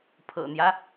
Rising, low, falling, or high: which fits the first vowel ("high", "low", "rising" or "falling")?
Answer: low